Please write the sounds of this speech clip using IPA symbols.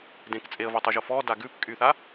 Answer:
dẽk t͡sʼeə̯votˤuʒo fɔda ɡʉp kʼyθa

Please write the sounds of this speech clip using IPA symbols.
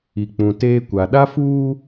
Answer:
i˨k͡pũ˨teː˦kʷa˨ ɗa˦fuː˦

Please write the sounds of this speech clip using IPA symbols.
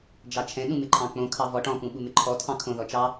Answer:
d͡ʒɑt͡ʃʰɛ̃ ɗũmɪǃʰɑ̃k͡põ kʰɑvɔʈ ɔ̃ pũɓumɪǃʰɔ tʰɑ̃kʰõ ðɔt͡ʃɑ

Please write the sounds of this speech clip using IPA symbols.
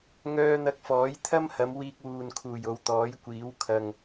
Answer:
ŋœː˧n̪ɐ˧k̚ fɔː˨˥jt̪ʰɐ˥mhɐ˨˧m wiː˧k̚wuː˨nkʰuː˨˩j o˨˧wt̪ɔː˨˥jkʷiː˨˥w kʰɐ˧ŋ

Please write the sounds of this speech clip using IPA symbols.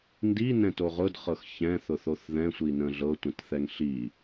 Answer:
ndinɛ̃to ʁʊdχɤx çɛ̃θʊθoθ ðɛ̃sʷinə̃ ɮɤtʷə̃tθɛŋ ɬi

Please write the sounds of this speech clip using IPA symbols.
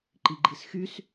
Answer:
ǃiɡ͡ǃisxys

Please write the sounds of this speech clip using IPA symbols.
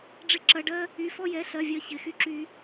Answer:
ɖ͡ʐɪ˧ ǁɐ˩˧˩ɖɜ˧ | y˩˧˩fɔ˧jɛ˩˧˩ ɬɜ˩˧˩vʲɜ˧ çɪ˩˧˩xy˧ǁy˧

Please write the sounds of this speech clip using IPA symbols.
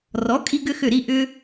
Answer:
rɔ˩˥ kʼi˥ɡʏ˥xʏ˥˩ ɾi˥˩ʔʏ˧

